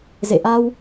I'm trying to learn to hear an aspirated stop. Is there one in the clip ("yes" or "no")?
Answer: no